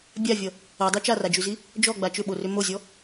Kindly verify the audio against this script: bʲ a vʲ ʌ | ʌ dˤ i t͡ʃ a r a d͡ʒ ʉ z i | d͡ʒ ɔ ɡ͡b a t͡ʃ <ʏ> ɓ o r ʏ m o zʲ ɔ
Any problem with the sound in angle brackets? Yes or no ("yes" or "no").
no